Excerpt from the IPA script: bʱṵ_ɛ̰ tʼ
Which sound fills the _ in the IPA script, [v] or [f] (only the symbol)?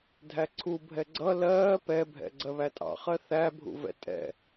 v